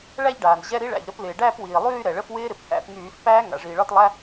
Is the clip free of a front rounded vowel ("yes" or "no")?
no